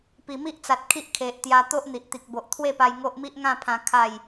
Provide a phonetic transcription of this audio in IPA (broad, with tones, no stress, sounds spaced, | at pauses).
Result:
p i˨˩ m i˦ ʔ t͡s a˨ t̚ kʰ i˦ ʔ kʰ e˨ ʔ t̪ j a˧ t̪ o˦ ʔ n̪ i˨ ʔ t̪ i˨ k̚ b o˨ ʔ t̪ʰ w e˥˧ p a˧ j ŋ o˦ ʔ m i˦ ʔ ŋ ã˥˧ pʰ ã˧ kʰ a˥˧ j